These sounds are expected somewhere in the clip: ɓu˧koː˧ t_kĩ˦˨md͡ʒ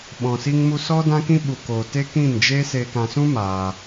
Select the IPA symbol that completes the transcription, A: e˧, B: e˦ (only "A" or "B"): B